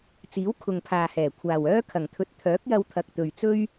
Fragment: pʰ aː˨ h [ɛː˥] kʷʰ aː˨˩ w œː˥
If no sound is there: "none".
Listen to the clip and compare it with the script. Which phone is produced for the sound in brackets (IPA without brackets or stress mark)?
ɛː˨˩